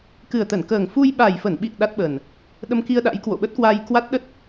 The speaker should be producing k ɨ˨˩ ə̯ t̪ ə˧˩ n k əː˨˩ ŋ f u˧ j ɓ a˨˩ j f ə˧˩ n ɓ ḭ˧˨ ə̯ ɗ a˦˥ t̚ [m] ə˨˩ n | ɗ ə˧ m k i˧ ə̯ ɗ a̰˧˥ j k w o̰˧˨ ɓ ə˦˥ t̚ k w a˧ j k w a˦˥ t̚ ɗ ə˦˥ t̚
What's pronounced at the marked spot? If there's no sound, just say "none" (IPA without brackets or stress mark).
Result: ɓ